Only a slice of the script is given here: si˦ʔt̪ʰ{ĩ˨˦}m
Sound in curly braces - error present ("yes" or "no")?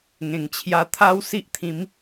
no